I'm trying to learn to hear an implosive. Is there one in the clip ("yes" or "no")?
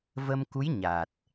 no